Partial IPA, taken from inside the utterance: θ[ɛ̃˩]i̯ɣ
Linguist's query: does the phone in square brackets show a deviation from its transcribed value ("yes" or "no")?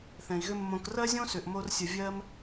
no